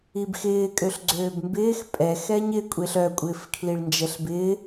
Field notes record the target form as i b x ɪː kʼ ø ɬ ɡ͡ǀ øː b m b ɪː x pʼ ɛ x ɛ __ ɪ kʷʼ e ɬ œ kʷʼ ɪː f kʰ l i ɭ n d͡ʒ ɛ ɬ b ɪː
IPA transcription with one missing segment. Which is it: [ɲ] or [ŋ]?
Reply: ɲ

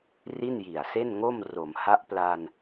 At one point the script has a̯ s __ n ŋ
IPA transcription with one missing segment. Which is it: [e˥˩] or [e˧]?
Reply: e˥˩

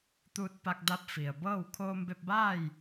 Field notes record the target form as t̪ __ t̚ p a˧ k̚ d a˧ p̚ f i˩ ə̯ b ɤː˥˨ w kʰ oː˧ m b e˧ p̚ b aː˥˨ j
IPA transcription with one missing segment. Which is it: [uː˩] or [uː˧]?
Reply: uː˧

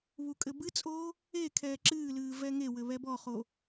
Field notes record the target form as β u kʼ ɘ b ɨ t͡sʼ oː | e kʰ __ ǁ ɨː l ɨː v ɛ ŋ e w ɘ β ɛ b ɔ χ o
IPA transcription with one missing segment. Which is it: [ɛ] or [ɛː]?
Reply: ɛː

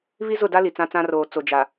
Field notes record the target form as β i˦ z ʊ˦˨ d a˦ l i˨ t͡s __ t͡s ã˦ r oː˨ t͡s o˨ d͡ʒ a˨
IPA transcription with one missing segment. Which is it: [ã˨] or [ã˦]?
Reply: ã˦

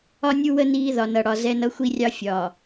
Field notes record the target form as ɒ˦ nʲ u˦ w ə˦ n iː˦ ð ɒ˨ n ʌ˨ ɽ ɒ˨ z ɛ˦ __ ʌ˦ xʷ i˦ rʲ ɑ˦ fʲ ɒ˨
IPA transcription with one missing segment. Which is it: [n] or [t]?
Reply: n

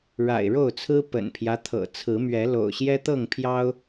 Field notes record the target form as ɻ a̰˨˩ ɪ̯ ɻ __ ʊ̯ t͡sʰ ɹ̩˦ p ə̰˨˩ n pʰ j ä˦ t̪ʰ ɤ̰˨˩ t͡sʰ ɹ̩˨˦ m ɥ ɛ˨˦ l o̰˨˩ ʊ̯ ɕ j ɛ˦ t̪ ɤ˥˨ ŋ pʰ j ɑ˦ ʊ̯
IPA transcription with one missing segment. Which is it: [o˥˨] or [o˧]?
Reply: o˥˨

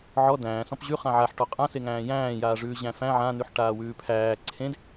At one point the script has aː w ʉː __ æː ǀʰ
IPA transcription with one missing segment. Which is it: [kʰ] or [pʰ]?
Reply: pʰ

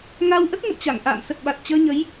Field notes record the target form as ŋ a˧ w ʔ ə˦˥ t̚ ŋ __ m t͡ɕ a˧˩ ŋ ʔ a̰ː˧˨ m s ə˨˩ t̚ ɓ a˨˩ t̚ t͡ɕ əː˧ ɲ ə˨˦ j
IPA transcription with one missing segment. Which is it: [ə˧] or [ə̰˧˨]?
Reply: ə̰˧˨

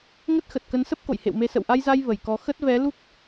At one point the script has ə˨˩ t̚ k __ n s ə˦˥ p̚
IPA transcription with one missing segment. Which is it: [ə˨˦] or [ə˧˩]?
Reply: ə˨˦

